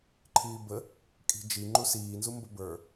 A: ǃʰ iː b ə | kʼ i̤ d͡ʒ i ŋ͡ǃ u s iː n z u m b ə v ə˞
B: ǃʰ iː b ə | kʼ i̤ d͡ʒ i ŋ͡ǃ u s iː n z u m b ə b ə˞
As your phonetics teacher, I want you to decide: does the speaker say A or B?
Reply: B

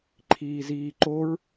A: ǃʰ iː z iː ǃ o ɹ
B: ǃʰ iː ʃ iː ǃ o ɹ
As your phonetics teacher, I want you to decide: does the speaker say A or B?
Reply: A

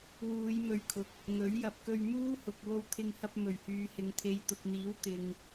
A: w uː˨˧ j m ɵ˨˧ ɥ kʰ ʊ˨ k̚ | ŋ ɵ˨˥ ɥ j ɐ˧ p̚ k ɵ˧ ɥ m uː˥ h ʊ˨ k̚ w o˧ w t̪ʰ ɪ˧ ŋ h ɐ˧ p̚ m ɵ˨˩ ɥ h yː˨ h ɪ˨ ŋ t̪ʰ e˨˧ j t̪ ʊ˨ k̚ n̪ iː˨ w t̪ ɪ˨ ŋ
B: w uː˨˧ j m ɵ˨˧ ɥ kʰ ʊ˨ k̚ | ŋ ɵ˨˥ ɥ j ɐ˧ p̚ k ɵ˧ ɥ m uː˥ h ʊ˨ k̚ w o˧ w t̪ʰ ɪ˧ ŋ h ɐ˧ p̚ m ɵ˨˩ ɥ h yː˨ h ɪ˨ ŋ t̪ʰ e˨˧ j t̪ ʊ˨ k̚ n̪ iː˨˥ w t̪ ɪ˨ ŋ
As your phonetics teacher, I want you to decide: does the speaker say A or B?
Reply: B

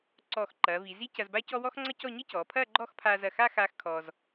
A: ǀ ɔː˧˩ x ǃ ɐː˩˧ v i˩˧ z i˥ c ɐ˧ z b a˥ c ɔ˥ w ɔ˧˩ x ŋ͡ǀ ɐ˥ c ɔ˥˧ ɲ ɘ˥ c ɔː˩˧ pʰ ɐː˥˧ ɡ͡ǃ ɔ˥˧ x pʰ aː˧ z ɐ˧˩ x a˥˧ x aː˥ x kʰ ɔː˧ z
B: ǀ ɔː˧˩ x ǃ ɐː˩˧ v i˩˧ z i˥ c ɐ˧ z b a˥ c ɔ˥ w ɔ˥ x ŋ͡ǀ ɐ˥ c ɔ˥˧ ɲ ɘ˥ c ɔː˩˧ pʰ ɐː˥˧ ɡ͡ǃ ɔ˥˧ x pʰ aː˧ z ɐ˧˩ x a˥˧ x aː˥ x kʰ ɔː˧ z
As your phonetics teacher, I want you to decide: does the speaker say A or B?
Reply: B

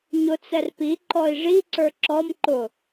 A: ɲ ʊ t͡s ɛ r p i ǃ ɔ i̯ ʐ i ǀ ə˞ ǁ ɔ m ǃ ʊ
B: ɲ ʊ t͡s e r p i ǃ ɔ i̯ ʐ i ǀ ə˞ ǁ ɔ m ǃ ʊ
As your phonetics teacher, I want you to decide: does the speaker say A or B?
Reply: A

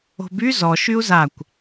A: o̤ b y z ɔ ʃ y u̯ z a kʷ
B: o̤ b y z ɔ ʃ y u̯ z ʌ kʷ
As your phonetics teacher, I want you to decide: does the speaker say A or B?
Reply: A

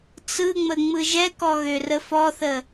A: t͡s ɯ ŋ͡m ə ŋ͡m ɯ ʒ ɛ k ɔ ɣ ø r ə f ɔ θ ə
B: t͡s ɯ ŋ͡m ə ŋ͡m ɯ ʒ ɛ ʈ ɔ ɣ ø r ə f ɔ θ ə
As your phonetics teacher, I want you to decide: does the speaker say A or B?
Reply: A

